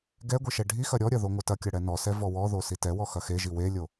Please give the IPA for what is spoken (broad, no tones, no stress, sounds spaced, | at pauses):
ɡ ɛ ɡʷ i ʃ ɛ ɖʱ i x ɐ ɾʲ ɔ ɾʲ ɐ ð o ŋʷ ɐ t ɐ kʲ ɐ ɽ ɛ n ɔ s ɛ v ɔ w ɔ ð o s i t ɛ w ɔ x ɐ x e ʒ i w e lʲ o